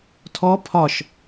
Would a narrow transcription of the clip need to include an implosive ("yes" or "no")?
no